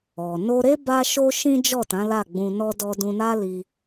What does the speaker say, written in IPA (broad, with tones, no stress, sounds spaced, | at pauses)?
ɔ˨ n o˧ ɾ e˦ b a˦ ʃ o˦ ʃ ĩ˦ d͡ʒ ɔ˦˨ t ã˨˦ l a˦˨ ɡ͡b ũ˧ n ɔ˦ d ɔ˦ d ũ˧ n a˦ l i˧